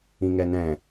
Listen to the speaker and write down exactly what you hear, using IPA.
ĩ ŋ ɛ n ɛ̃

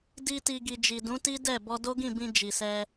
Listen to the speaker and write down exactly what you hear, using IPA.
d i˧ t i˨ ɡ i˨ d͡ʒ i˨ d ũ˨˦ t i˦ d ɛ˦˨ b ɔ˧ d o˦ ɡ ĩ˦˨ b ĩ˧ d͡ʒ i˨ s ɛ˧

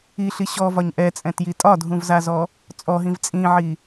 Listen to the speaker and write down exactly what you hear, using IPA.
i ɬ i ɕ ɔ v ɒ ɲ ʔ ɛ t͡sʼ ɛ̃ t j i tʼ ɒ dʱ ũ v z a z ɔ | t͡sʼ ɔ ɦ ĩ v t͡sʼ ĩ ʕ i

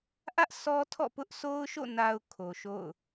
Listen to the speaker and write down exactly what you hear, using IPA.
ʔ ä˦ ʔ sʰ ɔ˦ tʰ ɔ̰˦˨ p ʊ˦ ʔ s o˦ ʊ̯ ʃ o̰˦˨ n a˨ ʊ̯ kʰ o˨ ʃ o̰˦˨ ʊ̯

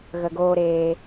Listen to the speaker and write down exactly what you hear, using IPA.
ɣ ə˨ ɡ oː˧ ɾ eː˧

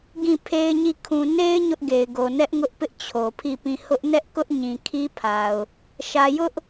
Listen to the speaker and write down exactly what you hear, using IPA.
ɡ ĩ˦˨ pʰ e˦ ɪ̯ ɲ i˦˨ kʰ ũ˨ n e˦ ɪ̯ ɲ ʊ˦ ʔ ɡ e˨ ɪ̯ ɡ o˨ n ɛ˦ ʔ ŋ ʊ˦ ʔ p ɪ˦ ʔ t͡ɕʰ o˨ pʰ i˦˨ p ĩ˦˨ h ʊ˦ ʔ n ɛ˦ ʔ k ʊ˦ ʔ ɲ ĩ˨ kʰ i˦ pʰ a˨ ʊ̯ | ʃ ä˨ j ʊ˦ ʔ

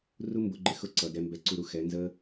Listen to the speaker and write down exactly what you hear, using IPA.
r u˦ m b ʊ˨˦ ɡ͡ǃ ɪ˧ x ʊ˦ ǀ ʌ˨ d ɛ˧ m b ɛ˧ ǀ u˧ ɾ u˨ x ɛ˨˦ n z ə˦

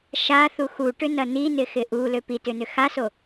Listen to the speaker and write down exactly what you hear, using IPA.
ʃ a θ u x u ʈ ʏ n ɐ n i n ɪ x ɪ ʔ u l ø p i t ʏ n ʏ x a s o

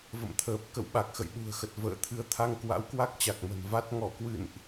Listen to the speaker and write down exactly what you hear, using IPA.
v ə̰˧˨ m t̪ʰ əː˨˩ p̚ k ə̰˧˨ w ɓ a˨˩ k̚ x ə̰˧˨ j ɗ ṳ˨˩ ə̯ x ə˨˩ t̚ v ə̰ː˧˨ t̪ʰ ɨ˧ ə̯ t̪ʰ a˧ ŋ k w a̰˧˥ w k w a˦˥ k̚ t͡ɕ a˨˩ k̚ m ə̤˨˩ n v a˦˥ t̚ ŋ ɔ˧˩ k w ɨ̰˧˨ n ʔ

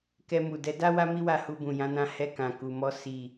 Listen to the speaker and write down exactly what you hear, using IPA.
k ɛ˧ m u˨ d ɛ˨˦ d a˦ w a˦ m i˦ w a˦˨ h u˧ b ũ˨ j ã˨˦ n ã˧ h ɛ˧ k ã˨ k u˨ m ɔ˧ s i˨

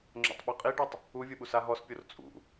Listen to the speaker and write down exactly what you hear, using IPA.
ŋ͡ǁ o̰ tˤ ɓ o qʼ i ɖ u tˤ | u vʲ u ɓ u s a ɦ ɔ s pʲ o r t͡sʼ ṵ

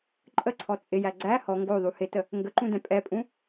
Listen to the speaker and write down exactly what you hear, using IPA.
ǃʼ ə ǀʰ ɔ t͡sʼ ɪ j æ ɡ͡ǀ æ h ɔ ŋ ɡ o ðˤ u h ɪ t ə | ŋ ɡ ə ǃ ũ d ɛ̃ pʼ ɛ pʼ ũ

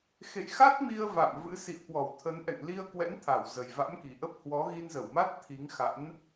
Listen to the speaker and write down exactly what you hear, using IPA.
x ḛ˧˨ j x a˦˥ t̚ m i˧ ə̯ v a̰˧˨ m v ɨ̰˧˥ s ḭ˧˨ ə̯ k w ɔ˧˩ w t̪ʰ ə˨˦ n ʔ ɛ̰˧˨ ŋ l i˧ ə̯ k w ɛ̰˧˥ n t̪ʰ a˧˩ w z ə˨˩ j v a̰˧˥ m k i˨˩ ʔ ə˦˥ p̚ h w ɔ˨˦ ɣ i˧ n z ə˧˩ w m a˦˥ t̚ t̪ʰ i˨˦ ŋ x a̰˧˥ n

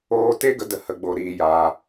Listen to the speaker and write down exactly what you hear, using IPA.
oː˧ t e˦ ɡ ə˨˦ d ə˨ h ə˨ ɡ͡b o˨ ɾ iː˨ j aː˨

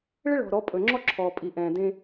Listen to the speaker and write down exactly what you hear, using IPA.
ɭ ɪ˦ ɭ ɔ̤˨ ɾ ɔ˨˦ pʼ ɵ˨ ŋ͡ǁ ɔ˦ ǁʰ ɔː˨ pʼ i˨ ʔ ɛ̃ː˨ d ẽ˦

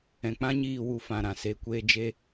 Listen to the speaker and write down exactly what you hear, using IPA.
ɛ̃˨ k͡p ã˦ ɲ iː˦˨ w u˧ f ã˨ ɾ ã˨ s e˨ kʷ eː˧ d͡ʒ e˧

